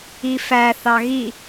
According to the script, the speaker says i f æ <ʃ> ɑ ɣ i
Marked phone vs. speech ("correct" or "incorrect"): incorrect